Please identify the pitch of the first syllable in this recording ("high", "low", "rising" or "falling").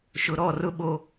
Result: low